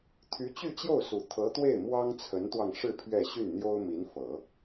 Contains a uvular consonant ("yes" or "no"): no